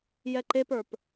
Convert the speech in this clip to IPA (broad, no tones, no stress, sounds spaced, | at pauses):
j ɛ ǃ e p ə˞ p